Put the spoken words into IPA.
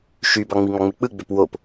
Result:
ʃ y b ɑ ŋ͡m i ŋ ɑ ŋ͡m e k͡p ɯ ɡ͡b ø p w o p

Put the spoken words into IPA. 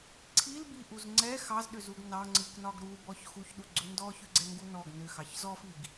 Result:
ǀʰ i l b i ʔ u z ŋ͡ǀ ɛ x ɑ z ɗ ʏ z u ɡ n ɑ ŋ͡ǀ ɨ k n ɒ ɡ ɾ u b ɔ ç x u ç ɗ u ɡ͡ǀ ʏ n d ɔ ç ʏ ɡ͡ǀ ɛ ŋ ɡ u n ɔ ɡ n ʏ x ɑ ç z ɔ f i ɡ

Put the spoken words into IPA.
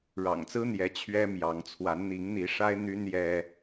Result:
ɻ ɑ̰˨˩ ŋ t͡s ɹ̩˦ n̪ j ɛ˨˦ t͡ɕʰ ɥ ɛ˦ m j ɑ˨˦ ŋ t͡sʰ w a˨˦ n n̪ i˨˦ ŋ n̪ i˨˦ ʂ a˦ ɪ̯ n̪ y˦ n j ɛ˦

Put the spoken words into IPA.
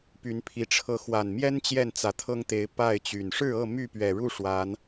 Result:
p y˨˦ n pʰ i˨˦ ʈ͡ʂʰ ɤ˨˦ x w a˨˩ n m j ɛ˦ n t͡ɕ j ɛ˥˨ n t͡s ä˨˦ t̪ʰ ɤ˦ ŋ t̪ e˨˦ ɪ̯ p a˥˨ ɪ̯ t͡ɕ y˨˩ n ʂ ɻ̩˥˨ ɤ˥˨ m y˥˨ p ɥ ɛ˨˩ ɻ u˥˨ ʂ w a˨˦ n

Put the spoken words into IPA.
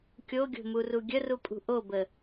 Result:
kʲ o ɡʲ o̤ m u r u ɡʲ ə r u pʼ ṳ ʔ o b ə

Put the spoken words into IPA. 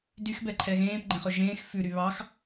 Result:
d y x b ɛ ǃʰ ɛ ɣ ẽː p ɡ͡ǃ ẽ χ ɵ ʒ ẽː x f ʉ ɾ y β ɑ x

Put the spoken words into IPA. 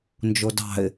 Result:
n d͡ʒ o d ɑ̤ ɪ̯

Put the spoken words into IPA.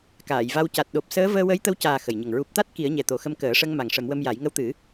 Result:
k aː˨˩˨ j v a˧ w c a˨˩ t̚ ɗ o˨˩ p̚ s əː˧˥ v əː˧ w ə˧˥ j t̪ ə˧ w c aː˨˩ x ə˨˩ j ɲ ə˨˩ ŋ ɹ u˨˩ p̚ t̪ a˦˥ t̚ k i˨˩˦ ə̯ ɲ ɛ˨˩ t̪ o˨˩ x ə˧ m k əː˨˩˦ ʂ ə˧ ŋ m a˨˩ ŋ ʂ ə˨˩˦ m w ə˧ m j a˨˩˦ j ŋ ə˧˥ w t̪ ɨ˨˩˦

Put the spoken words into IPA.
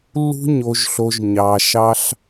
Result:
lː ṳ˦ ɲ o˧ ʒ ɬ o˧ ʒ ɲ ɑ˧ ʃ ɑ˦ ɬ

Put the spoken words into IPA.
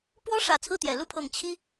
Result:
p w ɔ˥ ʂ ä˨˩ t͡sʰ ɹ̩˥˩ t̪ j ɛ˨˩ l u˥˩ pʰ ɤ˨˩ ŋ t͡ɕʰ i˥

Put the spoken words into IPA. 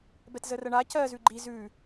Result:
b ɛ t z ə r ɜ ɳ a c ɜ z ʉ ɡ͡ǃ i z ʉ

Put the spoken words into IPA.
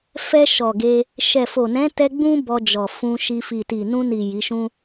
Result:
f ɛ˧ ʃ ɔ˨ ɡ e˧ | ʃ ɛ˨ f o˨ n ɛ̃˨˦ t ɛ˧ ɡ͡b ũ˦ b ɔ˧ d͡ʒ ɔ˨ f ũ˧ ʃ i˧ f i˨ t i˨ n ũ˧ n i˨ j i˨˦ ʃ ũ˦

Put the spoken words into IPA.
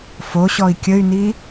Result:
f o ɕ ɔ i̯ kʲ ə y̯ n i

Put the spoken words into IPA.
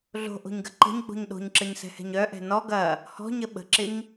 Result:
ɮ o̤ ʔ o̤ ɲ ɡ ɐ ǃ ə̤ ɲ ɡ͡b o̤ ɲ ɗ o̤ ɲ ǁ ə ɲ s ɛ̤ h ɛ̤ ɲ œ ʔ ɛ̤ n ɔ ɡ ɐ | h ɔ̤ ɲ ə ɓ ə̤ ǁ ɪ ɲ

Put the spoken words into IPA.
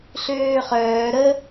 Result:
ɬ øː χ œː ɾ ə

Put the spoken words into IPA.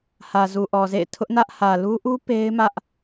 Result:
h ä˨ z u˨ ʔ ɔ˨ z ḛ˦˨ ɪ̯ tʰ ʊ˦ ʔ n ä˦ ʔ h ä˨ l u˦ ʔ u˦ p e˦ ɪ̯ m ä˦ ʔ

